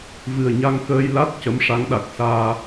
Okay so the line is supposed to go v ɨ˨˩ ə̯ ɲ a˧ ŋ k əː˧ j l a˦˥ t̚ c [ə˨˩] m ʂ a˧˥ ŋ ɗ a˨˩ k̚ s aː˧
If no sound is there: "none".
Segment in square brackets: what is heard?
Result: ə˧˥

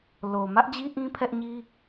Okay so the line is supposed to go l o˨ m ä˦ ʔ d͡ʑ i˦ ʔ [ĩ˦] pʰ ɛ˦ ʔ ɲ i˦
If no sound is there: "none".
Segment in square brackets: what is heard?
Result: ĩ˦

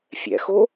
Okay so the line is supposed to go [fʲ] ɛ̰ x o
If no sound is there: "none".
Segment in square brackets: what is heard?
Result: fʲ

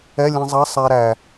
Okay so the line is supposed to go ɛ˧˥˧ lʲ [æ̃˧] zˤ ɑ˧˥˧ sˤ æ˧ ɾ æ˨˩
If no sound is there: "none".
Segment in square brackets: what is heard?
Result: ɛ̃˧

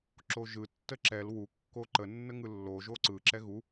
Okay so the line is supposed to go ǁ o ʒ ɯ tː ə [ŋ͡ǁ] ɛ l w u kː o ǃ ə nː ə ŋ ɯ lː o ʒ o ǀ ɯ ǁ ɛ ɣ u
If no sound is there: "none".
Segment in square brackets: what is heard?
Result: ǁ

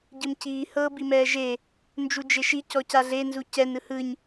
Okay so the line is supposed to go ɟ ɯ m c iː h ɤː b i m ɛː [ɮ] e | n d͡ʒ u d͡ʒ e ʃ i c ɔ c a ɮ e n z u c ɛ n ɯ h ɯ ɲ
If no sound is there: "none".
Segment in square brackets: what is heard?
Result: ʒ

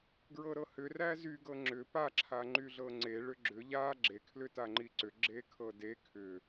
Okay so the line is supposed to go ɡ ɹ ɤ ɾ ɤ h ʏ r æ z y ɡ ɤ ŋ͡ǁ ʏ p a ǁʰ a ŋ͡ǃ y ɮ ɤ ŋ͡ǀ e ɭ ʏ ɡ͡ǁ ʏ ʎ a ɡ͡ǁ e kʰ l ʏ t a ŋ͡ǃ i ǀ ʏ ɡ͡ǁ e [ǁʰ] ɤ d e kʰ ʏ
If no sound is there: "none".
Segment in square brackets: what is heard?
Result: kʰ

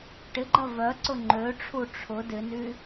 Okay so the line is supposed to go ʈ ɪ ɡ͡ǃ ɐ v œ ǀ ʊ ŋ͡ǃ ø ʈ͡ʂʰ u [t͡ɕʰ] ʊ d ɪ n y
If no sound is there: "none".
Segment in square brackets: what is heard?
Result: ʈ͡ʂʰ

